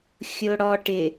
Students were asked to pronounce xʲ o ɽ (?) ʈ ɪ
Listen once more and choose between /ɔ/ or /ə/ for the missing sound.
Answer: ɔ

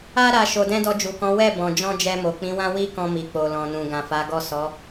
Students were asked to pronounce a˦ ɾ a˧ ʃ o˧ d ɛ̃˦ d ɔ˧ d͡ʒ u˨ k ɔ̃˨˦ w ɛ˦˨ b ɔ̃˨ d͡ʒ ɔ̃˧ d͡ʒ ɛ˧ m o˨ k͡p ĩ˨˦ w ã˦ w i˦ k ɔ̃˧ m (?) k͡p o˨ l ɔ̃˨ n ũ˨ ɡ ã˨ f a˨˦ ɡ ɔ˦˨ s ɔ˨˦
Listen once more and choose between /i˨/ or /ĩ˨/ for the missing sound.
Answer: i˨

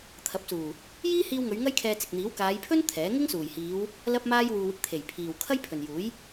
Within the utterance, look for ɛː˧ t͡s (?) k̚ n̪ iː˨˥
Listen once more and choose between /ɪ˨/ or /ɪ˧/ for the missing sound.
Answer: ɪ˨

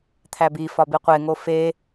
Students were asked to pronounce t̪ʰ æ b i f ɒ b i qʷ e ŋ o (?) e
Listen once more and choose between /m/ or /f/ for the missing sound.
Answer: f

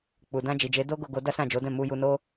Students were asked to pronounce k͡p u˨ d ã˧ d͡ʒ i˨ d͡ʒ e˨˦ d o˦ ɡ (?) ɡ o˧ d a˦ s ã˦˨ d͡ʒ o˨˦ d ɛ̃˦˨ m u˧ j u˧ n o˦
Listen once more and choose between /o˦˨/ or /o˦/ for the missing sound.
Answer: o˦˨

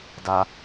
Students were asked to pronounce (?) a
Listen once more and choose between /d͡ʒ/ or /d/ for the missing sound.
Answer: d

